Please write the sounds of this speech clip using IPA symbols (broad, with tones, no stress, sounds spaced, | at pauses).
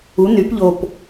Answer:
u˩˥ n y˩˥ p ʎ o˨˩ p